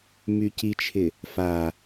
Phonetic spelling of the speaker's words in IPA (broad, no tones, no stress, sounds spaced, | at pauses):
m y c i t͡ʃʰ ɪ | f a